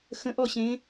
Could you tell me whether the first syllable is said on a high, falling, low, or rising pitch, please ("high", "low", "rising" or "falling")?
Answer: rising